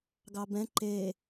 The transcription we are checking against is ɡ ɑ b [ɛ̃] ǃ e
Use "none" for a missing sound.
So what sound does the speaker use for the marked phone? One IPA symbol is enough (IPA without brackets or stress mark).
ɛ̃